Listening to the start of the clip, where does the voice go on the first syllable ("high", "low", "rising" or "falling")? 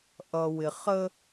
low